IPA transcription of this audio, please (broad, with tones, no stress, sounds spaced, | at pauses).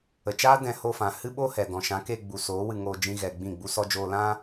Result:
ə˨ t͡ʃ aː˦ d ɛ̃˧ h o˧ f ã˨ h ɨ˦ ɓ o˦ h ɛ˨ d ɔ̃˨ ʃ ã˨˦ k e˧ ɡ͡b u˨ s oː˨˦ w ɨ˧ ŋ oː˧ d͡ʒ ĩ˦ ɣ ɛ˧ ɡ͡b ĩ˦˨ ɡ͡b u˦ s ɔ˦ d͡ʒ oː˧ l ã˦